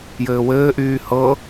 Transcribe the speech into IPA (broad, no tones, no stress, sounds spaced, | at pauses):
j ɘː w ɘː ʔ yː h ɤ